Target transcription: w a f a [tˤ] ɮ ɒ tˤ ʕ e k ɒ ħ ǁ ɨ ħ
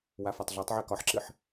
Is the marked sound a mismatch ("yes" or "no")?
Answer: no